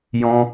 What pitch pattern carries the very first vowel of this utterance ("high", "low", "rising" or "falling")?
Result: high